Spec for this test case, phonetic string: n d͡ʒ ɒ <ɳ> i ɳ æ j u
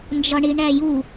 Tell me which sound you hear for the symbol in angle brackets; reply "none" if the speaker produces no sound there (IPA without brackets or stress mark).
ɳ